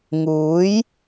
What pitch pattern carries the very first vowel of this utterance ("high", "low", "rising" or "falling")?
rising